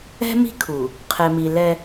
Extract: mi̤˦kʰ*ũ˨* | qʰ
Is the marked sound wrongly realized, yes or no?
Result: yes